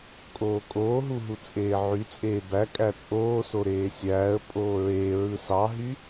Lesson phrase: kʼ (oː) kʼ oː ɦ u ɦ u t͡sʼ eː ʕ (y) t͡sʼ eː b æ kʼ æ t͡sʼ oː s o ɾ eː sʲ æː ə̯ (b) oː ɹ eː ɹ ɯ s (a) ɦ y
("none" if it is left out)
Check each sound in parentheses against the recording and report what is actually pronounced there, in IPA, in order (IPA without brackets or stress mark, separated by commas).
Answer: oː, y, pʼ, ɑ